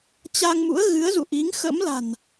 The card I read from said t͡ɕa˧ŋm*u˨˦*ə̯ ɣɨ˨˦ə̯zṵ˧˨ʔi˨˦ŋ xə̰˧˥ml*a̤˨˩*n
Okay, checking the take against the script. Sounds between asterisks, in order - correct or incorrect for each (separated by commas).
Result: incorrect, correct